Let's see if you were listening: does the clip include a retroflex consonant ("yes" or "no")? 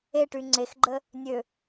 yes